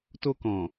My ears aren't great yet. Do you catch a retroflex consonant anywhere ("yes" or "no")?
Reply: no